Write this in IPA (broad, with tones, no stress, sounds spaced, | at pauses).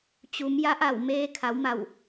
t͡ɕ u˩˧ m j a˧˥ ʔ a˧˩ w m eː˧ kʰ a˩˧ w m a˧˩ w